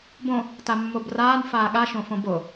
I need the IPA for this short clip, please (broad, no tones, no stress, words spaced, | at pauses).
bõ | tamːobraːn faːɠa ʃõfõbo